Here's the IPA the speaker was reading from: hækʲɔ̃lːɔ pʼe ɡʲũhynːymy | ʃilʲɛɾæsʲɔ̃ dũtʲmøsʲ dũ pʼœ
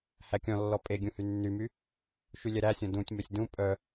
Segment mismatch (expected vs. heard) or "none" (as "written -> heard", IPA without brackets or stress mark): i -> y